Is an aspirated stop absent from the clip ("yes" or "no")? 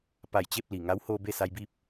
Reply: yes